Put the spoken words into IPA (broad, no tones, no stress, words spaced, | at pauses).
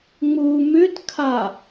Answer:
ŋ͡mu mʉtkʰa